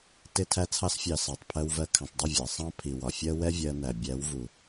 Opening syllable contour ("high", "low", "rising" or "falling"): falling